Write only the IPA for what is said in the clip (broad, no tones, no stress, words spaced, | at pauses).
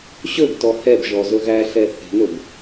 ɕɵɡtɔ hɛbʒɔ zɵɣæɬɛ θe̤nɵb